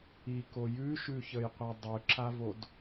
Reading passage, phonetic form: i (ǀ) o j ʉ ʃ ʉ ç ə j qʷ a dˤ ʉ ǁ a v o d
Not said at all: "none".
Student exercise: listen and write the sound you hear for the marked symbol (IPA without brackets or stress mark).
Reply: k